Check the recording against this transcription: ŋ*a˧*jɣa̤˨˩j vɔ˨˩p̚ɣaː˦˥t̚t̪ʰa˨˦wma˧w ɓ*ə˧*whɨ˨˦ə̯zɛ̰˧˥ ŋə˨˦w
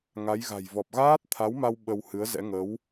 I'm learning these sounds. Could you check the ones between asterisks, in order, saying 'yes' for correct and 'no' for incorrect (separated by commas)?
no, yes